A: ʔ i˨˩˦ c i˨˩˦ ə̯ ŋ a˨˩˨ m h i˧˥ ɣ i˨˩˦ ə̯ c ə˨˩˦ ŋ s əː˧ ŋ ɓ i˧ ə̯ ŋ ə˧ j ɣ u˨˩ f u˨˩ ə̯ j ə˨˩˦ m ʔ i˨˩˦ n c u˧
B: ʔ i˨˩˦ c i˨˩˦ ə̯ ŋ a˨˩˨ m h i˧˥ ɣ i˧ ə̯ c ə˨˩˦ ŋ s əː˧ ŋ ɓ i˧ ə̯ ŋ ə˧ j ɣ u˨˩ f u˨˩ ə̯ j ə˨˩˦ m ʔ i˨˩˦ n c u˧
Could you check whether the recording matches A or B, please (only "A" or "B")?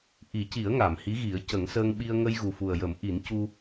A